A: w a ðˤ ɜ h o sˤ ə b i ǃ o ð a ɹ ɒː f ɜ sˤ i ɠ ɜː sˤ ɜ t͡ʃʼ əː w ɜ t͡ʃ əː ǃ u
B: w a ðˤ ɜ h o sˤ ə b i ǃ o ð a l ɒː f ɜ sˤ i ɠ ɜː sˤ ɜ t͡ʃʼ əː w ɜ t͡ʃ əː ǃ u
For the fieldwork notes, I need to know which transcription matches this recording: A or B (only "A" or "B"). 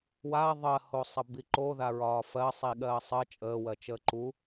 A